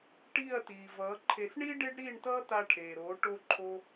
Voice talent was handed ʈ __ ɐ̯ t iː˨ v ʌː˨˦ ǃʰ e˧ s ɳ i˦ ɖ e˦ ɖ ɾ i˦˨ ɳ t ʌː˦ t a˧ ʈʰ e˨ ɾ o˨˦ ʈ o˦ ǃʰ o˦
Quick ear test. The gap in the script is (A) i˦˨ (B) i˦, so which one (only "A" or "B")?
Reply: A